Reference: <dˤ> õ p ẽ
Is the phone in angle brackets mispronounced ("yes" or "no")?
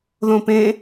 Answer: yes